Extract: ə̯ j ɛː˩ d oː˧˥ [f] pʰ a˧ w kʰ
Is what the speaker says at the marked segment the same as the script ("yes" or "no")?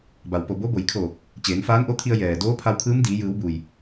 no